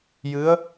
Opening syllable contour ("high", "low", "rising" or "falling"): rising